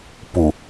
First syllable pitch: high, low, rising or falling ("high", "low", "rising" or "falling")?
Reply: low